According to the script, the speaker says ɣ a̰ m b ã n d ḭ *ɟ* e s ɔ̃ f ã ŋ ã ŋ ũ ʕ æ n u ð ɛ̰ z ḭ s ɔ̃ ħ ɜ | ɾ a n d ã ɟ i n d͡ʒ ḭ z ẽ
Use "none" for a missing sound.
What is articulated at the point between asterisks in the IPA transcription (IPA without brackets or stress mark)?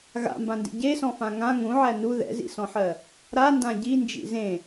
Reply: ɟ